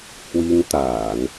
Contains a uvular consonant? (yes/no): no